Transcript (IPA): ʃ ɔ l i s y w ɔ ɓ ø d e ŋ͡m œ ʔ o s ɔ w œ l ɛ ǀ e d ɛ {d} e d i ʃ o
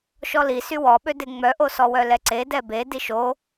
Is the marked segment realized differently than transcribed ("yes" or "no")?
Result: yes